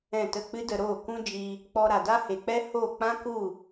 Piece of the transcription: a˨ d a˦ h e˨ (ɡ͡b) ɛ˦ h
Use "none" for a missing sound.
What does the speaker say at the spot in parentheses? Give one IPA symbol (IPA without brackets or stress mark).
k͡p